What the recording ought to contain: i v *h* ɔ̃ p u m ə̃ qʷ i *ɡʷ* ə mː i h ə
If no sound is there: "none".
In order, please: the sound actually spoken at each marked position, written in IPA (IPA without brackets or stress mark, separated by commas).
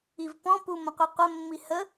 p, qʷ